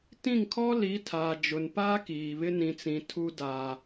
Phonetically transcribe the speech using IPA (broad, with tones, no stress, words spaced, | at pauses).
tĩ˦˨ŋkʰɔ˦ li˨˦tʰaː˨d͡ʒʊ˨n pa˦kiː˨ βɪ˦ nĩ˨t͡sĩ˨ tʰu˦ daː˦